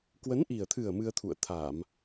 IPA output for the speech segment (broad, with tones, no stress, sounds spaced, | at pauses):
k w ə˨˦ n ʔ i˨˩ ə̯ t̪ʰ ɨ˨˩ ə̯ m ɨ˧ ə̯ t̪ʰ ṵ˧˨ ə̯ t̪ʰ a˧˩˨ m